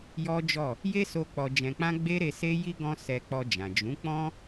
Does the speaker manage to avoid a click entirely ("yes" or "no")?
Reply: yes